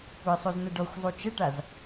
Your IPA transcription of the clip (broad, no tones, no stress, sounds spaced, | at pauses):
kʷ ɛ sˤ ø z n ə ɖ ɔ xʷ zˤ u t͡ʃ ə ʈ a z